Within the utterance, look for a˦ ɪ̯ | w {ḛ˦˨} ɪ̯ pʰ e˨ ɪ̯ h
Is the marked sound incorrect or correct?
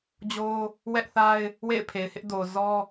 correct